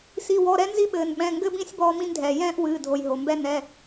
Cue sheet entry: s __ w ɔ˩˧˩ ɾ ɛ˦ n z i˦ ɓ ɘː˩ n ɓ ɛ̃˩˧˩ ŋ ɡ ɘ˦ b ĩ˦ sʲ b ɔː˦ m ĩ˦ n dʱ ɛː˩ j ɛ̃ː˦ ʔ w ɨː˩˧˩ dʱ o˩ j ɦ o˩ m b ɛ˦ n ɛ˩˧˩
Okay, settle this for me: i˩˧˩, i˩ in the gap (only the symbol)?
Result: i˩˧˩